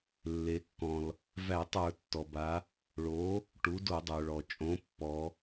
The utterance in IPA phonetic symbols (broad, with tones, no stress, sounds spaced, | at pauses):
lː e˩˧ kː ɔ̃˩ l | v æ˧˩˧ tˤ ə˞˧˩˧ tː ɔ˩ b a˩˧ | ɭ o˩˥ | ʈ u˩˥ d o˧˩˧ dˤ ə˞˩ ɭ ɔ˩ t͡ʃʼ õ˩˥ pː ɔ˩˧